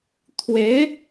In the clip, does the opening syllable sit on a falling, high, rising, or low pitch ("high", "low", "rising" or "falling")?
rising